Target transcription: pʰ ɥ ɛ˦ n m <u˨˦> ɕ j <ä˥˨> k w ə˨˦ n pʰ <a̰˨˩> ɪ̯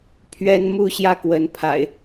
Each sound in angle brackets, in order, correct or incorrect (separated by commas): incorrect, correct, correct